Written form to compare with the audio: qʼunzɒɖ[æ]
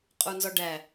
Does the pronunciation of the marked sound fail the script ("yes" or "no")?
no